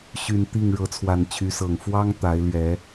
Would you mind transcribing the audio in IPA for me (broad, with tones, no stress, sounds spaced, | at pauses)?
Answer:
ɕ y˨˩ n t̪ i˥˨ ŋ ɻ ɤ˨˦ t͡sʰ w a˨˩ n t͡ɕʰ y˨˦ s ɤ˨˩ ŋ f w ɑ˦ ŋ t̪ a˨˦ ɪ̯ l ɥ ɛ˨˦